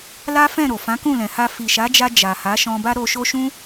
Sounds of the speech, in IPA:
l a˦ f ɛ̃˦˨ ɾ o˨ f ã˨˦ k ũ˦˨ l ɛ̃˨ h a˧ f i˨ ʃ a˨˦ d͡ʒ a˧ d͡ʒ a˨ h a˨˦ ʃ ɔ̃˧ b a˦ ɾ o˧ ʃ o˦ ʃ ũ˦

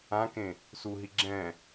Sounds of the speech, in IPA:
ã k ẽ | s u ɦ i ɡ͡ǁ ɛ̃

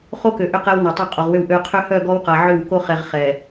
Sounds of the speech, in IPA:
χ o˦ k ø˨ ʔ ʏ˦˨ q ɛ˦ w n ɔ˨ tˤ o˦˨ qʼ o˨ ʁ w ʏ˦˨ w ʔ ø˦ qʰ ʏ˦ h œ˦˨ ɡ ɔ˦ w q a˨ ʕ ʏ˦˨ w k o˦ χ ɛ˨ ʁ χ ɛ˨

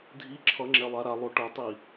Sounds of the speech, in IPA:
dʱ i ǁʰ ʌ ŋ͡ǁ ɛ lˠ a ɾ a lˠ o ʈ ʌ tˤ i

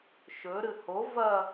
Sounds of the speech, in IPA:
ʃ ɵ ɾ ɨ h o v ɐ

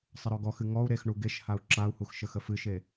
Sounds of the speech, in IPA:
sˤ ə ɾ ɔ ɡ ɔ x ɨ ŋ ɔ u̯ ɾ e x ɳ u ɡ e ʃ h a u̯ ǁ a u̯ h u x ʃ ə x ə f ɨ ʃ e

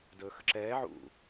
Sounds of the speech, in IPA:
d ɵː x ə ǁ ɛː ʕ ṵ

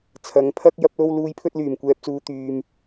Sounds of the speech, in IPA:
t͡sʰ ɐ˨˥ ŋ pʰ ɐ˥ k̚ j ɐ˧ p̚ l o˧ w l uː˨˧ j pʰ ɵ˧ t̚ l yː˨˩ m kʷ ɛː˨ p̚ t͡s uː˨ t̪ yː˨ m

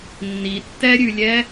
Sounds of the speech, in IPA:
nː i tː ɛ ɾʲ ʉ lʲ ɛ

